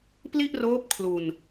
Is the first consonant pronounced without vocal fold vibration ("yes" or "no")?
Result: yes